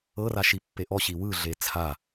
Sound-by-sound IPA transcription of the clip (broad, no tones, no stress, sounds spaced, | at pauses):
ɤ r a ʃ i pː e ʔ ɔ ɕ i w ɯ ɮ e t͡sʰ a